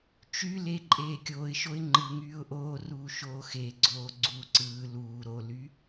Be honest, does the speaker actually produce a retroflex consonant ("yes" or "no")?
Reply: no